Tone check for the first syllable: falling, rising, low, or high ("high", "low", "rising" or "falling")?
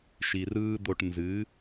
low